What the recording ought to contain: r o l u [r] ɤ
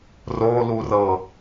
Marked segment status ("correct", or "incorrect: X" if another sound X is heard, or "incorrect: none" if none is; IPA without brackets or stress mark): correct